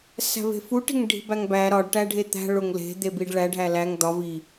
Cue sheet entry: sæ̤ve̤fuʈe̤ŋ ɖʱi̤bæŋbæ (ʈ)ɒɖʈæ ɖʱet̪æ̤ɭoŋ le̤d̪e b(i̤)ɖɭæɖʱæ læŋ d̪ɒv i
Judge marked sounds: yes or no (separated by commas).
no, no